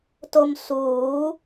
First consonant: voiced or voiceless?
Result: voiceless